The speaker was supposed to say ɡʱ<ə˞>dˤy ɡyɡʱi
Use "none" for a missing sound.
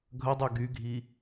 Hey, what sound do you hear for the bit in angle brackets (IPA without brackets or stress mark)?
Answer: ə